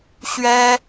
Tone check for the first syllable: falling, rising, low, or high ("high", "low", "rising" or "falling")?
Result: high